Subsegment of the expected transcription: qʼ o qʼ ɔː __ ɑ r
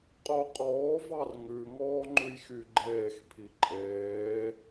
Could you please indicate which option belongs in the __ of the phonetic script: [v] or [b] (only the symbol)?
v